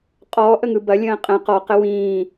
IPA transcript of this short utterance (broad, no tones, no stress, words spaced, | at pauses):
qʼɔːʔəŋɯ bɐlʲə̃ː qʼə̃ qɔqə wĩː